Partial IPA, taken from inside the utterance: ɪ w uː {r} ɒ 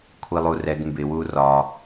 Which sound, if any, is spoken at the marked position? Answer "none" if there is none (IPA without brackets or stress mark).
r